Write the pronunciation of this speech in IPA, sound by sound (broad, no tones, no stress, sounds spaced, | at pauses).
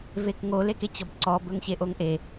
v e k ŋ o l e k e t͡ɕ ɔ b ǀ ɔ b ɵ ŋ ɕ e ʔ o ŋ ʔ e